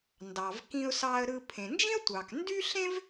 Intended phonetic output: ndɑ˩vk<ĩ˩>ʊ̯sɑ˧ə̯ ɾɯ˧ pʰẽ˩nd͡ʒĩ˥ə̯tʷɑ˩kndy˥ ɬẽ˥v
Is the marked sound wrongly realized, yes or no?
yes